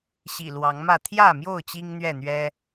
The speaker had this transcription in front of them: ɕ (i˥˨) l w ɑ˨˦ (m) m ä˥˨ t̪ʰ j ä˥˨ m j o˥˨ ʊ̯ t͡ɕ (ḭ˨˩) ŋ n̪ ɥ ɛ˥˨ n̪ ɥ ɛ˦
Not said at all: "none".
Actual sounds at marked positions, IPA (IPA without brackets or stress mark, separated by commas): ḭ˨˩, ŋ, i˦